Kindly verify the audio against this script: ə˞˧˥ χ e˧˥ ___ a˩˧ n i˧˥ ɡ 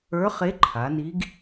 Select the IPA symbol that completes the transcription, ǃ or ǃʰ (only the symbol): ǃʰ